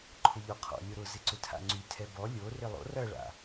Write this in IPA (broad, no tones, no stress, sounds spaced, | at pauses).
ǃʰ ʊ ʎ ɔ qʰ ɔ̰ lʲ ʊ ɾ ʊ z ɪ ǀ ʏ tʰ a̰ ŋ͡ǀ y tʰ ɛ b ɔ lʲ o r ɪ lˠ o̰ r ɐ ɭ a̰